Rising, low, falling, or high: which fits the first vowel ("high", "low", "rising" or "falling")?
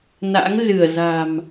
rising